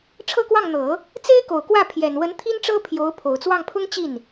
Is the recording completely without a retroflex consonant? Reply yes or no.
no